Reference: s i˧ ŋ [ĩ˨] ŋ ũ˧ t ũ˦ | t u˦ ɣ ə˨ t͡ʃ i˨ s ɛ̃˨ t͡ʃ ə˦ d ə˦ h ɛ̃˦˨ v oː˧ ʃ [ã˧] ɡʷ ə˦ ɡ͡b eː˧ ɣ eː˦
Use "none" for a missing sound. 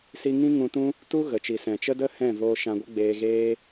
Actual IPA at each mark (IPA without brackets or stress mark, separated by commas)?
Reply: ĩ˦, ã˧